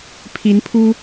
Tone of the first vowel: rising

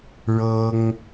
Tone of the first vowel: high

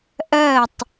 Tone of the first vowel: falling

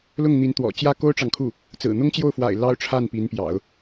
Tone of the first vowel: falling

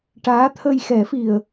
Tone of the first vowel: rising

